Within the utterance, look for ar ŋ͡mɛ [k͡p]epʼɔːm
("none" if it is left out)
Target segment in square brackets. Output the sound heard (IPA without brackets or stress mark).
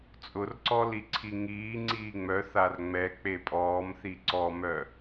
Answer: k͡p